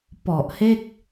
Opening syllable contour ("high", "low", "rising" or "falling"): low